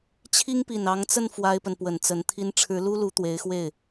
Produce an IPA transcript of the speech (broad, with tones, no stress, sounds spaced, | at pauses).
t͡ɕʰ i˥ ŋ p i˨˩ n ɑ˧˥ ŋ t͡s ə˥˩ n f w a˥ ɪ̯ p ə˨ n p w ə˨˩ n t͡s ə˧˥ n t̪ʰ i˥ n ʈ͡ʂʰ ɻ̩˧˥ l u˥ l u˧˥ t̪ w e˧˥ ɪ̯ x w e˥˩ ɪ̯